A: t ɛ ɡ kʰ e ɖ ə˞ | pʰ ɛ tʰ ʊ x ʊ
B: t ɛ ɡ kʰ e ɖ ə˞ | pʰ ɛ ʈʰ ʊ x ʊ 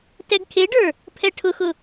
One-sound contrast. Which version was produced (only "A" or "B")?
B